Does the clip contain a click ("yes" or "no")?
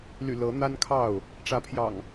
no